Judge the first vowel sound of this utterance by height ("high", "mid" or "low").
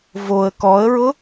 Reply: mid